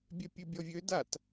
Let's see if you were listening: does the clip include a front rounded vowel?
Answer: yes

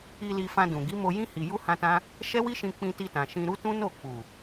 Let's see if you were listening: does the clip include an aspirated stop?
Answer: no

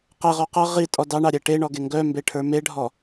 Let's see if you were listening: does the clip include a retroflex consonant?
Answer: yes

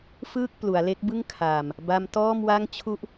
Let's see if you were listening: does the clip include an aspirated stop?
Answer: yes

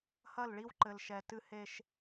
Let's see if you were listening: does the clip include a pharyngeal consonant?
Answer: no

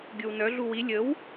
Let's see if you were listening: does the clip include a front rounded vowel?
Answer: yes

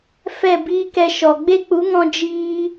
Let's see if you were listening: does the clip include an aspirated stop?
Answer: no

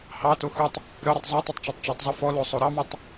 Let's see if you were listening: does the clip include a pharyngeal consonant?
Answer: no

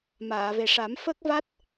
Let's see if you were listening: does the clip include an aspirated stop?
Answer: no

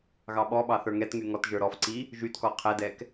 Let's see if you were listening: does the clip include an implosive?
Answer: yes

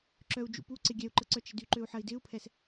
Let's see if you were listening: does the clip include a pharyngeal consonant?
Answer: yes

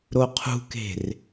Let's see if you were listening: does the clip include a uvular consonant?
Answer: yes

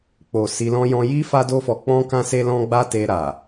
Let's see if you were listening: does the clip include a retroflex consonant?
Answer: no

